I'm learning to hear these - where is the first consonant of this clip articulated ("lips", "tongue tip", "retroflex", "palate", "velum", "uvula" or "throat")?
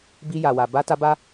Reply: lips